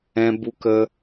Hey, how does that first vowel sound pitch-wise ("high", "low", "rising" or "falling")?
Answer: high